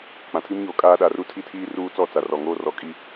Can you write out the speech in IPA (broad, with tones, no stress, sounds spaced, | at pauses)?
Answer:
k͡p ã˨ tʰ i˦ m ɲ oː˨ kʼ aː˦ ɗ a˨ r u˦ tʰ i˦ tʰ iː˦ r uː˦ t͡s ɔ˦˨ t͡s a˨ r ɔ˨ ŋ oː˦ r ɔ˨˦ kʼ i˦